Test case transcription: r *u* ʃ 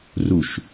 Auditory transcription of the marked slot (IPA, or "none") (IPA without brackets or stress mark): u